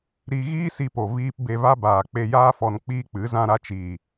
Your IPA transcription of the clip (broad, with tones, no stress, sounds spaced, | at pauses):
ɾ i˧ ɣ iː˦ s i˧ p o˨ v iː˧ p b e˧ v a˦ b aː˨ k͡p e˧ j aː˦ f ɔ˧ n k͡p iː˦ k͡p ɨ˨˦ z ã˧ ɾ a˧ t͡ʃ iː˨